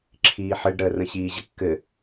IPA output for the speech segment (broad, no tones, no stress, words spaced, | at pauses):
ǁʰiːħɘɖɾəː rə̃ɕiːʑəkːɘ